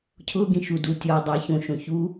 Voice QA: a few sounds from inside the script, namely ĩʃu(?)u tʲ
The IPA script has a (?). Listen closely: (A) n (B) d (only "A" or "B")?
B